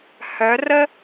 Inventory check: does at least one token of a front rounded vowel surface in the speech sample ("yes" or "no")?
yes